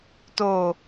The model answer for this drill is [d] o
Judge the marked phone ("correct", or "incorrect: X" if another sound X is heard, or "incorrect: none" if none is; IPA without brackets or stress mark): incorrect: t